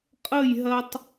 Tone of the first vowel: falling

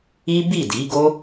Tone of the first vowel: high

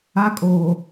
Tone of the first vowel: high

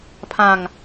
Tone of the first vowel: falling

